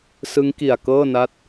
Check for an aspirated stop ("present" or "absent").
absent